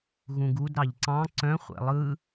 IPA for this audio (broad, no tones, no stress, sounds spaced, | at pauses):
ɣ ũ ɡ u d ɾ ɑ ʎ ǀ ɑ̃ ǀ œ̃ χʷ ɛ̰ lˠ ɯ